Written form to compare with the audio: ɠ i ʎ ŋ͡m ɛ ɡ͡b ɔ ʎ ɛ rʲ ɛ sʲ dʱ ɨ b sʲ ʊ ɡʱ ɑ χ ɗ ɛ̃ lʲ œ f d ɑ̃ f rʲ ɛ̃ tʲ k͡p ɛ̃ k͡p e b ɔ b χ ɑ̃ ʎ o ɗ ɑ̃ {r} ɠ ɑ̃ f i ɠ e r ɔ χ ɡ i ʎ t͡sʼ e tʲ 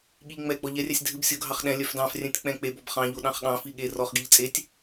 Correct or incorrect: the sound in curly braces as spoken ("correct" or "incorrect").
incorrect